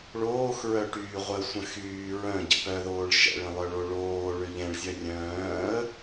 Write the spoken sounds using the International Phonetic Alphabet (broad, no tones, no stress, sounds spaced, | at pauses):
ɭ oː x ɹ œ ʈ yː ʁʷ ə sʷ ə̃ x yː ɹ œ̃ ɟ ə̰ p œ ð oː ɭ ʃ ɛ̰ ɭ ə̃ lˠ œ ɭ o ɭ oː ɭ ø ʎ ɛ̃ ɭ zʲ œ rʲ œ̃ː ə̯